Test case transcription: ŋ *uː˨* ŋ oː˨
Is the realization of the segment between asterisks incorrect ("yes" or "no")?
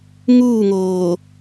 yes